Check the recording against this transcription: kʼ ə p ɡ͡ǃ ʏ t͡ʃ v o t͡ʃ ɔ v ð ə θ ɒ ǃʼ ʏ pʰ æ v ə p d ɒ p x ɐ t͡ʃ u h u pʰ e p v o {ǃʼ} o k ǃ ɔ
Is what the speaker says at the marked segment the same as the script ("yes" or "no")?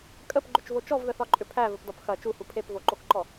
no